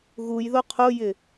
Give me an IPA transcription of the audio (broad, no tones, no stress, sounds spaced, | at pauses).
ɣ u j ð o qʰ o j ɪ